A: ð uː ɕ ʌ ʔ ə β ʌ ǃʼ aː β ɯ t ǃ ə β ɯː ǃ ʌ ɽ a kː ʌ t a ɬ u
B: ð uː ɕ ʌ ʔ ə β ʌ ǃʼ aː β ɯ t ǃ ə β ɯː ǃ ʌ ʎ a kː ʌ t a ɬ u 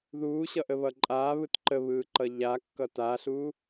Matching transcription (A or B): B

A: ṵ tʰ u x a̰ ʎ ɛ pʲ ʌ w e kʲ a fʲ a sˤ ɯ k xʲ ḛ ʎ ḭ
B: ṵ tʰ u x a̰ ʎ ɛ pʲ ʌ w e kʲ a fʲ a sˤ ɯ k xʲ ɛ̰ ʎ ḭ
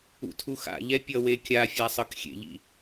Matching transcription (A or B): A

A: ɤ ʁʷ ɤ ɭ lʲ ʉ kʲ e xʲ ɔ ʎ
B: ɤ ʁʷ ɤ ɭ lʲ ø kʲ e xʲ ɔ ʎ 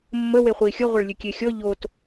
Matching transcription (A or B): A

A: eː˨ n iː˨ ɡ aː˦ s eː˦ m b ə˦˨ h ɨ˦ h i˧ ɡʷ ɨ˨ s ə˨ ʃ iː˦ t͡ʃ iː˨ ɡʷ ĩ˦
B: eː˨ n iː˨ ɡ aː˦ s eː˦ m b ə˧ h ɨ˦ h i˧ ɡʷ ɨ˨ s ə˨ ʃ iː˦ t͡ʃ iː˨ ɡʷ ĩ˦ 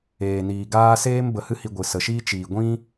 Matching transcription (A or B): B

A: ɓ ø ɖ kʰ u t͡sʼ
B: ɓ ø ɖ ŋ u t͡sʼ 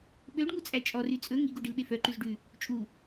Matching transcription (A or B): B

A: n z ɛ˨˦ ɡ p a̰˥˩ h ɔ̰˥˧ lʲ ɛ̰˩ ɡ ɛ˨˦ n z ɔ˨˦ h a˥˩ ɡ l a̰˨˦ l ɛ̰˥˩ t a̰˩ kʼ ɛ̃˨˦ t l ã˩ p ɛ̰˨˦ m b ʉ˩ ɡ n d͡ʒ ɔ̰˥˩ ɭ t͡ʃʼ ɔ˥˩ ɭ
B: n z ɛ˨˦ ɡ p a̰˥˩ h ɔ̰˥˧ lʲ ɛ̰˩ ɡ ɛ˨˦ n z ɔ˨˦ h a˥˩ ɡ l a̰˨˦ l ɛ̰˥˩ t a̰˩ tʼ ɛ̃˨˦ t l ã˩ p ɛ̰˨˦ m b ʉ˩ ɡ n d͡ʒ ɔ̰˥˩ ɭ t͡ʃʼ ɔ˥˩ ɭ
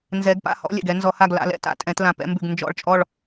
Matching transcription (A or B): B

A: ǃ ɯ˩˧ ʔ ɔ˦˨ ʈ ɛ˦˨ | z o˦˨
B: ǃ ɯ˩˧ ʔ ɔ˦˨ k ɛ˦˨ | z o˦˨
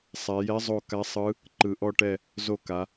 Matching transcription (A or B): A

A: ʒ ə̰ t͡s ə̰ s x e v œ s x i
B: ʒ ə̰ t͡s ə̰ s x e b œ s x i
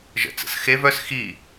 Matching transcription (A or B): A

